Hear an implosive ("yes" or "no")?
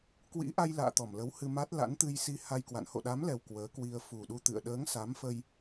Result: yes